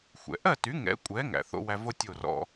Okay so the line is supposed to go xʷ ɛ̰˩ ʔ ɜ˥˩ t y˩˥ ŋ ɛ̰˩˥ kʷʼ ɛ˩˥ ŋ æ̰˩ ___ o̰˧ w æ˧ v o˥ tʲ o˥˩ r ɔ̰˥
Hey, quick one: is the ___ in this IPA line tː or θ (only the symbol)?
θ